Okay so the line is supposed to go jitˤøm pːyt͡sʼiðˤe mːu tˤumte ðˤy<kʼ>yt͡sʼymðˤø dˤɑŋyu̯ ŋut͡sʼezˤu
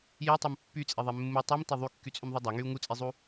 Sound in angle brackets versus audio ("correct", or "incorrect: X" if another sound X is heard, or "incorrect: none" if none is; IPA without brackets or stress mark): incorrect: kː